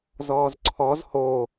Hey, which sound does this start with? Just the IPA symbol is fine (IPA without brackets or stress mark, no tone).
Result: z